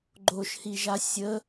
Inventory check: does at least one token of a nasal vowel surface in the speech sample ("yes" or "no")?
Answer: no